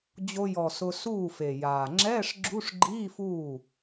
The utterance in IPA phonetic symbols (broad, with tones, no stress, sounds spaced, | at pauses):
d͡ʑ o˧ j ɔ˨˩ s ʊ˧ s uː˥˩ f e˨˩ j aː˨˩ ŋ͡ǁ ɛː˧˥˧ ʂ ɡ͡ǁ u˧˥˧ ʂ ɡ͡ǃ iː˧˥˧ f uː˥˩